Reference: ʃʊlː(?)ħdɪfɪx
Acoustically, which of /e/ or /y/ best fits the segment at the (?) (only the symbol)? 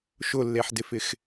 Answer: e